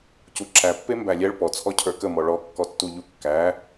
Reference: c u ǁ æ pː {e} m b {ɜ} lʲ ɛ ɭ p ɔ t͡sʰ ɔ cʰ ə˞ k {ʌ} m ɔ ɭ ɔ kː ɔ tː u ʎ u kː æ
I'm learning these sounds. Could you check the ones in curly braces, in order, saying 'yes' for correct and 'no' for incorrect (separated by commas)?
yes, no, no